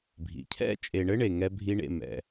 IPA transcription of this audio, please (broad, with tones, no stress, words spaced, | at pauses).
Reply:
bʱḭ˨ cʰɛ̰˦t͡ʃʼe˨ɳɘ˦ ɳe˨ŋɛ˦bʱi˦ɳḛ˦˨ mɛ̰˨